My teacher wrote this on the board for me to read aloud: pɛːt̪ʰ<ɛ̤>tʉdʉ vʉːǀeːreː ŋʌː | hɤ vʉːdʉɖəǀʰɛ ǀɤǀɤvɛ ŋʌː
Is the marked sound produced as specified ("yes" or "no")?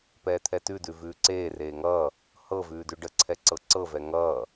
no